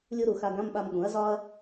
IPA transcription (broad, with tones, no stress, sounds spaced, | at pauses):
lʲ u˥ ɾ u˩˧ x a˧ ɡ ã˧˥˧ m ɓ a˧ m ɠ ũ˩˥ ɐ̯ z ɒː˥ ɐ̯